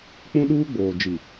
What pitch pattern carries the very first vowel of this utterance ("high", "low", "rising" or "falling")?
high